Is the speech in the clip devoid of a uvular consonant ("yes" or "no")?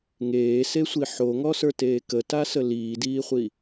no